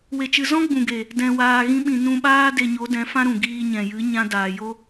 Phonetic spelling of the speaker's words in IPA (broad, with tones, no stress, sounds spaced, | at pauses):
w e˨ t͡ʃ ɨ˨ z ɔ̃˦ ɡ͡b ũ˨ ɡ e˨ | d ɛ̃˨ w aː˨ ɣ ĩ˧ ɓ ĩ˨ n ũ˧ ɓ aː˦ d e˧ ɲ o˨˦ d ɛ̃˨˦ f ã˦ ɾ ũ˨ ɡ iː˧ ɲ ɛ̃˨ j ɨ˨˦ ɲ ã˦ d aː˨ j o˦